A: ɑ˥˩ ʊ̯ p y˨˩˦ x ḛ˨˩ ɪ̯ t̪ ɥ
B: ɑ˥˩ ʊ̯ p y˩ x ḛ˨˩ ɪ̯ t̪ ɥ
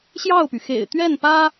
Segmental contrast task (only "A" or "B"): B